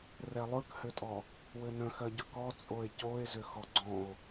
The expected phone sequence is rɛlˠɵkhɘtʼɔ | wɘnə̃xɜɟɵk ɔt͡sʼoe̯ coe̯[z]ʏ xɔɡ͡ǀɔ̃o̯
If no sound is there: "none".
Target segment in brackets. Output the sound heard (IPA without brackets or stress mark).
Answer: z